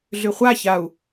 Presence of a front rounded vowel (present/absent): present